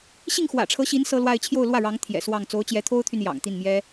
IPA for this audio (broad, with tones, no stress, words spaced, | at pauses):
ɕi˥˩ŋxwä̰˨˩ʈ͡ʂʰɤ˧˥ɕi˧˥n sɤ˥lwa˥˧ɪ̯ t͡ɕʰjo˥˧ʊ̯lwä˥˩ɻɑ˧˥ŋ t̪ʰjɛ̰˨˩swɑ˥˩ŋ t͡so˧˥ʊ̯t͡ɕjɛ˧˥t̪ʰo˥ʊ̯t̪ʰy˨n jɑ̰˨˩ŋt̪i˥˩nmjɛ˥